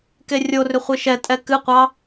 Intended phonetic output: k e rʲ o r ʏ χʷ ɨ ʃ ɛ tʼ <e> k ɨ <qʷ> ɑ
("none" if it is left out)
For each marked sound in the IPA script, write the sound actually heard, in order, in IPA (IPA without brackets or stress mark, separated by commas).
ɛ, qʷ